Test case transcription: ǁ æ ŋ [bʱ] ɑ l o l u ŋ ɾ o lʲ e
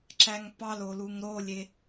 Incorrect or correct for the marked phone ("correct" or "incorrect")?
incorrect